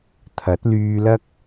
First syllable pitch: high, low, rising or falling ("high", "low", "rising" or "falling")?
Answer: rising